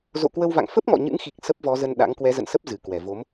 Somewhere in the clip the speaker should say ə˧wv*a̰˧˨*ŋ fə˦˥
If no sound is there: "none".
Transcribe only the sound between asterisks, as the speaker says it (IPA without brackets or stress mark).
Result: a̰˧˨